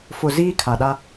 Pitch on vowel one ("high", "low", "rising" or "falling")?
low